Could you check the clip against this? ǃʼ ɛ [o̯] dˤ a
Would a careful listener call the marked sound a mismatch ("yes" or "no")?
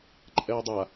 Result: no